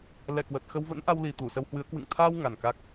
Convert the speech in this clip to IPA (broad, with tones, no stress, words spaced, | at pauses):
lɛ˧˩kwə˨˩t̚xə˧w və̰˧˥nʔa˧wli˨˩ t̪u˧˩sə˧whwɨ˨˦ə̯ kwɨ̰˧˨ŋ t̪ʰaː˧w ŋa˨˩nka˦˥k̚